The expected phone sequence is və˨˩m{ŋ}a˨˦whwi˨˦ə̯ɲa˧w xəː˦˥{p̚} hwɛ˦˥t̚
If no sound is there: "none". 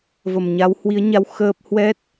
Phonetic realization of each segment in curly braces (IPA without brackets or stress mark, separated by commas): ɲ, p̚